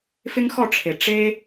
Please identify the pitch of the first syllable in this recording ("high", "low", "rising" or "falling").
high